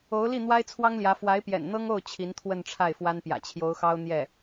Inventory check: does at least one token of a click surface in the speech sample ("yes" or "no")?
no